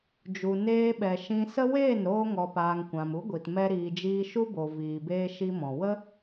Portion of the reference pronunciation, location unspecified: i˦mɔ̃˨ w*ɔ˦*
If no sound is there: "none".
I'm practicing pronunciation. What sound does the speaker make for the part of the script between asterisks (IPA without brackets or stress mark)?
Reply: ə˦